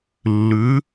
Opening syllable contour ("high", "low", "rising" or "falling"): rising